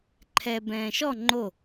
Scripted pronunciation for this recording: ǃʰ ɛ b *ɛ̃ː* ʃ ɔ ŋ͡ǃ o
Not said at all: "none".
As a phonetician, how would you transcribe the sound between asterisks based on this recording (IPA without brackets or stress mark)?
ɛ̃ː